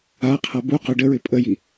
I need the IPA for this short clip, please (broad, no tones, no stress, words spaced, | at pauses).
aqʰa bu qœɖəɹɪ pʼəji